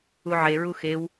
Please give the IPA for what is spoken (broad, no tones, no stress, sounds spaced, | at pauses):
u ʕ e ɹ u x e w